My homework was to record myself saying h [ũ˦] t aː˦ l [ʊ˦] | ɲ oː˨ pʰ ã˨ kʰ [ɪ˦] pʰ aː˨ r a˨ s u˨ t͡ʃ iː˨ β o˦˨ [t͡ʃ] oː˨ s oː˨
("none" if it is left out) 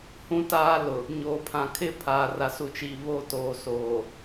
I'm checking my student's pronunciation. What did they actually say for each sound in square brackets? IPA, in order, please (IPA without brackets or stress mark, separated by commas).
ũ˦, ʊ˨, ɪ˦, t